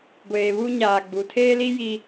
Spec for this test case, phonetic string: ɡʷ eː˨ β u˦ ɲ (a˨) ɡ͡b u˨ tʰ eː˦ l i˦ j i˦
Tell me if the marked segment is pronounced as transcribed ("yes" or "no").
no